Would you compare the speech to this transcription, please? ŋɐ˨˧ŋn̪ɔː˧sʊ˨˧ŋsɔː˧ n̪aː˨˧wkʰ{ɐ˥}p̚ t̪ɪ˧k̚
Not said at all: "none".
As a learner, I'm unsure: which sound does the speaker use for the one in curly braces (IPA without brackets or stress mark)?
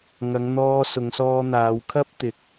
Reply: ɐ˥